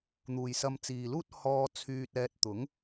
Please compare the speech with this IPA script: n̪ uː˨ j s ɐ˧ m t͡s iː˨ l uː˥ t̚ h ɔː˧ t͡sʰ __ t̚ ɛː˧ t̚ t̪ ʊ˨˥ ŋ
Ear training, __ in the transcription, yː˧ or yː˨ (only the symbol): yː˧